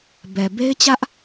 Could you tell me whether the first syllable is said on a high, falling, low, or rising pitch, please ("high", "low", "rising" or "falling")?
low